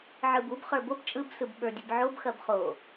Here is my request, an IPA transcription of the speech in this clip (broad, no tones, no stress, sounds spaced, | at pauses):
ʕ ɯ b u b χ ə˞ b o b t͡ʃʼ ɯ b s ɯ b ɓ ə˞ dʲ ɯ b ʕ o b x ɐ b χ o